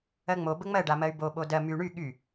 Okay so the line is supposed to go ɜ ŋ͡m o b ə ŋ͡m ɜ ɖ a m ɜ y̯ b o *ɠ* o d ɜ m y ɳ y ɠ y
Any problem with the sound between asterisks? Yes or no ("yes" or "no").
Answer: yes